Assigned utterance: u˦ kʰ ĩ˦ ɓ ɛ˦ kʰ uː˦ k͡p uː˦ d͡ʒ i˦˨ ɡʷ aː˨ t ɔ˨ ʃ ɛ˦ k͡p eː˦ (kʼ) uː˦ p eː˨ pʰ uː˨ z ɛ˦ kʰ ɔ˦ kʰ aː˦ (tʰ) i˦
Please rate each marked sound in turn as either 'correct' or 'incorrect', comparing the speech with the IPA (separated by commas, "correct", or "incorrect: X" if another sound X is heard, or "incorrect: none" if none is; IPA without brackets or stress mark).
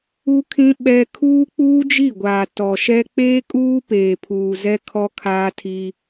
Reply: correct, correct